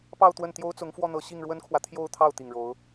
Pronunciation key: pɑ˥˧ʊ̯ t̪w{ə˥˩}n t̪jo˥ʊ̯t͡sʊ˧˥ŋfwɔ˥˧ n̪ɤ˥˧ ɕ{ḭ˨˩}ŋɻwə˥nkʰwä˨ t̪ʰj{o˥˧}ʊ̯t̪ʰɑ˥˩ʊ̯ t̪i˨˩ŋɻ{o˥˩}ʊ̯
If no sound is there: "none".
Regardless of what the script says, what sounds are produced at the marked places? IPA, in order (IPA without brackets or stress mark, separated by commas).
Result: ə˥˩, i˥˩, o˥˧, o˧˥